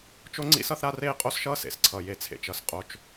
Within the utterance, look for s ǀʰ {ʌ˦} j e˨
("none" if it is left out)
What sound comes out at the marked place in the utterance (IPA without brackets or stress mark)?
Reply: ʌ˨